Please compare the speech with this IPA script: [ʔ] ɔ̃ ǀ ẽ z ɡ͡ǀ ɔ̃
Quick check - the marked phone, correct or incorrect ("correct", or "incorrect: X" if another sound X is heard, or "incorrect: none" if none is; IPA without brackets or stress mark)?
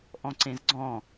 correct